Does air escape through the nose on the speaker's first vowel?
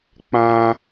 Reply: yes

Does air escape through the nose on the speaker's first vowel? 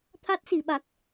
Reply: no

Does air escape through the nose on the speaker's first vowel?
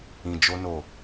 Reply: yes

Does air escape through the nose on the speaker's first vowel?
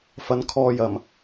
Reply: no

